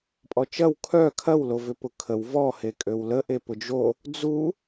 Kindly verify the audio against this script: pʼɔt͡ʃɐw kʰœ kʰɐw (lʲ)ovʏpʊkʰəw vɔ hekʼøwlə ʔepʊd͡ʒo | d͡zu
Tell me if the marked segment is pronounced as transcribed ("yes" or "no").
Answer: no